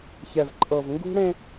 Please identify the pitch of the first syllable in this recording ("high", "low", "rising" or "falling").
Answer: low